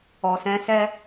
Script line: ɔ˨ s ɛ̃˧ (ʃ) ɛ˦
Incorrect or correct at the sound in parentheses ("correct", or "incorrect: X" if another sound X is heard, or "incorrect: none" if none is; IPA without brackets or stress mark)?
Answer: incorrect: s